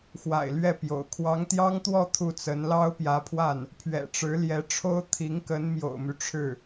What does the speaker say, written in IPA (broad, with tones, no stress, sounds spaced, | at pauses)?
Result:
x w a̰˨˩ ɪ̯ l ɥ ɛ˥˩ p j o̰˨˩ ʊ̯ kʰ w ɑ˧˥ ŋ t̪ j ɑ˥ ŋ t̪ w ɔ˥˧ t̪ʰ u˥˩ t͡s ə˧˥ n l ɑ˥ ʊ̯ p j ä˧˥ pʰ w a˥˩ n | pʰ ɥ ɛ̰˨˩ ʈ͡ʂ ɻ̩˧˥ l j ɛ˧˥ ʈ͡ʂʰ o˥ ʊ̯ t̪ʰ i˧˥ ŋ k ə˧˥ n m j o̰˨˩ ʊ̯ m y˦ ʈ͡ʂʰ ɻ̩˥˩